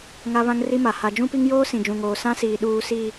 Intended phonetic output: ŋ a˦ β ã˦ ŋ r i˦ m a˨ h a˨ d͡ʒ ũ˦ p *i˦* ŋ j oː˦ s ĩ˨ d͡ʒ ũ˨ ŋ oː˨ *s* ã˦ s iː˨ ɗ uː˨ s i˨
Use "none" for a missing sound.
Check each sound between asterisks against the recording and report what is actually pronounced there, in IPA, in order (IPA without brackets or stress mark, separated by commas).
i˦, s